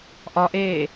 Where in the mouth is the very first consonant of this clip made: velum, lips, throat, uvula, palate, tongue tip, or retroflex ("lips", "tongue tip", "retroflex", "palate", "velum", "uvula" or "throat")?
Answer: throat